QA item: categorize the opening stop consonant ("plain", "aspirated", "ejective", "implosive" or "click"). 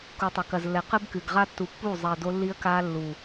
plain